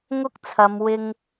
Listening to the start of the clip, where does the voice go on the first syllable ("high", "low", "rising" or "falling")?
high